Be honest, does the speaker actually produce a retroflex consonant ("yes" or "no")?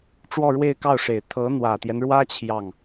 yes